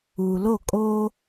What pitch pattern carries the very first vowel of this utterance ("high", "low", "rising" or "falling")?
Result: low